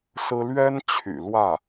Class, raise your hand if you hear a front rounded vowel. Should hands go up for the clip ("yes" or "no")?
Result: yes